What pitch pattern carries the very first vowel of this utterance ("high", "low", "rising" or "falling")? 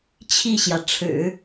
falling